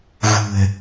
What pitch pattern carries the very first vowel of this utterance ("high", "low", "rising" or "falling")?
low